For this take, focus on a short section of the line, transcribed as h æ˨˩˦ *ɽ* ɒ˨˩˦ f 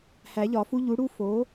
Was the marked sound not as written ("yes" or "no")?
yes